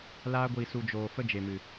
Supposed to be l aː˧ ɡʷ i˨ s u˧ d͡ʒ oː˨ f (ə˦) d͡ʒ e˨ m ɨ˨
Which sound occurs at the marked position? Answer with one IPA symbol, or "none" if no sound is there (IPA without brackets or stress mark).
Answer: ə˦